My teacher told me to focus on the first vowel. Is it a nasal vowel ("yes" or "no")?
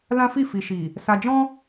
yes